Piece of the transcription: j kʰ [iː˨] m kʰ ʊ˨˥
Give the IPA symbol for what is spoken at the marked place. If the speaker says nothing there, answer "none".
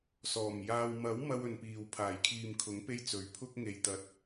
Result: iː˨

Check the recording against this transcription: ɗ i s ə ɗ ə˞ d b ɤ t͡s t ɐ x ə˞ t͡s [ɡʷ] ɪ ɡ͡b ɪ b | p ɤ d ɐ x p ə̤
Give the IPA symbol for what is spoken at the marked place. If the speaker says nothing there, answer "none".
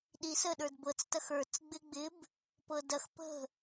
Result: ɡ͡b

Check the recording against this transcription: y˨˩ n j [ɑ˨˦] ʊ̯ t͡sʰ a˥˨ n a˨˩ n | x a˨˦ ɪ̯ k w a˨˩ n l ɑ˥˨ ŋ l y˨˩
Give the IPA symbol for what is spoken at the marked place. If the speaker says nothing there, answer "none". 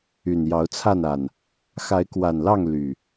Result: ɑ˨˦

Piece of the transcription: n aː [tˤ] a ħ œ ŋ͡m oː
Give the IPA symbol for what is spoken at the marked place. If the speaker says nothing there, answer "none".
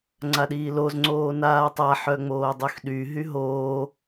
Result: tˤ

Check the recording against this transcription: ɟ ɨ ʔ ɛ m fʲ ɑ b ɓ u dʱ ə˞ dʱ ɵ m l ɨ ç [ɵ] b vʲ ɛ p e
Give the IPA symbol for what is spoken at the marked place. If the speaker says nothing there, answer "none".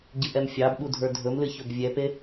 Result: ɵ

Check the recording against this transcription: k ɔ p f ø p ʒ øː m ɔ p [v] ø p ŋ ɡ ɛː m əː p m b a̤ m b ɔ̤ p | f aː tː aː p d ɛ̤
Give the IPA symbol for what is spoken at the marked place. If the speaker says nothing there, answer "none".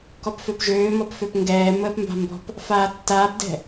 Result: f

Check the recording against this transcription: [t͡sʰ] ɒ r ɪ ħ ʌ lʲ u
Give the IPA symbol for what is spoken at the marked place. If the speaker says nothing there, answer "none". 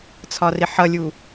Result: t͡sʰ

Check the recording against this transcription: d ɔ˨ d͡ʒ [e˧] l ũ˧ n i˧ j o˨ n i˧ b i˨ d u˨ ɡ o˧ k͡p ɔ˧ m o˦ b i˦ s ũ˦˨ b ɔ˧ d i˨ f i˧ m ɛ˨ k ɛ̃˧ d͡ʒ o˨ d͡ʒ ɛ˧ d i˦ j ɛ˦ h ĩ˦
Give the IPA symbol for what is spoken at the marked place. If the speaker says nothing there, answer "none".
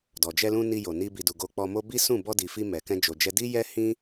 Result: ɛ˧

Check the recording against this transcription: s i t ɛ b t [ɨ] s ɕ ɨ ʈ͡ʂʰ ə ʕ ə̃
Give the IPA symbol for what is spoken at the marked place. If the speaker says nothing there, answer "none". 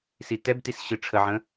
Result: i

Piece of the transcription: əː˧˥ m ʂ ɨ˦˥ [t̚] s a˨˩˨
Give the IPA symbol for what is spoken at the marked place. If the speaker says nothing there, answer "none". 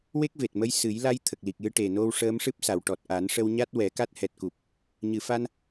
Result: p̚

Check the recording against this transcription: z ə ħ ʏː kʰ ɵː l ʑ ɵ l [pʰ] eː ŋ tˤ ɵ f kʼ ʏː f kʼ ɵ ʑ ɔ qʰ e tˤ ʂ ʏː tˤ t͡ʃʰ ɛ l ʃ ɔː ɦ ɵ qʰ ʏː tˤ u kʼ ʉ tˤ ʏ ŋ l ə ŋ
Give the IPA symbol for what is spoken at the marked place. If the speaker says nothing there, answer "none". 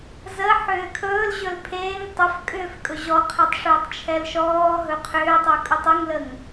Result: pʰ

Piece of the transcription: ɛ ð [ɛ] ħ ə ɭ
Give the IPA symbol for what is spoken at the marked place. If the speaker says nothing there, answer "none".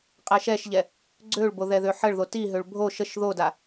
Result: ø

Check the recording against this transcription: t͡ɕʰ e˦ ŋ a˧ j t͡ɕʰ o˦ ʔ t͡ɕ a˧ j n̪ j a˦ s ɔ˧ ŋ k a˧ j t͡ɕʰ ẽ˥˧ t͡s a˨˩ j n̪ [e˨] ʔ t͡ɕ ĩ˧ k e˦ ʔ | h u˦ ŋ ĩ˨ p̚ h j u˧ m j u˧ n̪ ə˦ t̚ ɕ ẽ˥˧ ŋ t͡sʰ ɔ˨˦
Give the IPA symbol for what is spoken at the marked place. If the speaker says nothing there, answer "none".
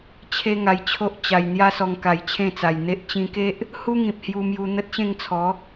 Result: e˦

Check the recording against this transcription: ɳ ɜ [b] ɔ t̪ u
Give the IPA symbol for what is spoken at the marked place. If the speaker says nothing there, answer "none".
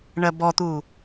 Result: b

